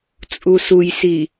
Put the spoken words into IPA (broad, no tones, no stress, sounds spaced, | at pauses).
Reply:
t͡sʼ u s u j s i